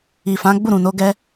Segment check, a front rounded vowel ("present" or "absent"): absent